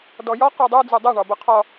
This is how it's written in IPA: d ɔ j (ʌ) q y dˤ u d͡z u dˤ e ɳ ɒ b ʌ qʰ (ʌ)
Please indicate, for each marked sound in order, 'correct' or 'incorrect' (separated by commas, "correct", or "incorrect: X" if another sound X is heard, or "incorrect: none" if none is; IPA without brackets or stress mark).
incorrect: ɒ, incorrect: ɒ